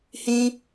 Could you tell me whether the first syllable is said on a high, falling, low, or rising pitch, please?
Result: high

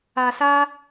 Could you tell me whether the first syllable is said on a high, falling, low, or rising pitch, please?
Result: low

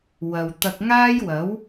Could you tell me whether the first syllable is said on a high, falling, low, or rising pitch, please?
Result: low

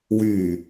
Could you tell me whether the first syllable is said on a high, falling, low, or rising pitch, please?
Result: low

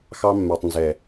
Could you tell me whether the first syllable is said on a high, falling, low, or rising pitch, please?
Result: high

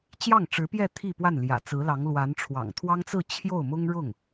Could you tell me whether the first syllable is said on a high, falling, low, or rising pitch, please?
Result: falling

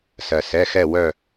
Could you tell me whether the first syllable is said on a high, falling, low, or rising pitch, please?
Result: low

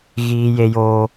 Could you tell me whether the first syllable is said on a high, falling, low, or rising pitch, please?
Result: high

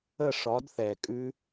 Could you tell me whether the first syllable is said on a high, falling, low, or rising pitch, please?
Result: falling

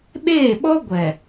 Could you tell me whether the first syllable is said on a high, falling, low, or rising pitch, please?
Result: falling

